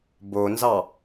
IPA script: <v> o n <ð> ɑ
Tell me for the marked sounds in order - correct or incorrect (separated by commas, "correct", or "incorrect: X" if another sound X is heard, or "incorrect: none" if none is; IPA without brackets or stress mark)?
incorrect: b, incorrect: z